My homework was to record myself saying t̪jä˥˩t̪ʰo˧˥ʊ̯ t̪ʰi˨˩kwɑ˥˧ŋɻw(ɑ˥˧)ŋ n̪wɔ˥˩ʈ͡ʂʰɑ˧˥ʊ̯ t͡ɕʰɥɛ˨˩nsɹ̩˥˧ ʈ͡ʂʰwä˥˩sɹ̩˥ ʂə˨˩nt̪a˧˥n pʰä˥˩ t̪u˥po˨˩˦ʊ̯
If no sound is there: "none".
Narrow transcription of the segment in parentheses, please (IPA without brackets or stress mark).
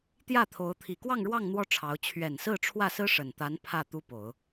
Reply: ɑ˥˧